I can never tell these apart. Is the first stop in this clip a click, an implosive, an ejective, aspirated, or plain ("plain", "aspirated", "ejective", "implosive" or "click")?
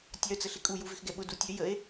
plain